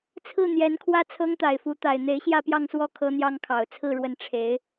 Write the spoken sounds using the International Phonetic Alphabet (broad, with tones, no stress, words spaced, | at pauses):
t͡sʰɹ̩˥˩n̪jɛ˧˥nkʰwä˥ t͡sʰɤ˥ŋt̪a˨˩ɪ̯fu˧˥t̪a˨˩ɪ̯ n̪e˧˥ɪ̯ɕjä˥˧pjɑ˥˧ŋswɔ˥˩ kʰɤ˥n̪jɑ˥ŋkʰɑ˨˩ʊ̯ t͡sʰɹ̩˥˩ɻwə˧˥n ʈ͡ʂʰe˧˥ɪ̯